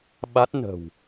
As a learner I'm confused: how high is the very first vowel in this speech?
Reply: low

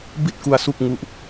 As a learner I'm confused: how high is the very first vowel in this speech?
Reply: high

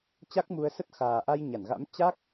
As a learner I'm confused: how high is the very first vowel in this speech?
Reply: low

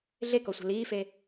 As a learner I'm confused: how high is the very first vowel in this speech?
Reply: mid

